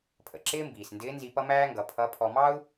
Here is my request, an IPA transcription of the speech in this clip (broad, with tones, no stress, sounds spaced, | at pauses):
pʰ ə̰˩ ǁ ɪː˥ m b iː˩ s n d ɪː˧˥ n z i˧ p ʌ˥ m æː˥ ŋ ɡ ʌ˩˧ pʰ ʌ˧˥ pʰ ɔ˧ m ɑ˥ u̯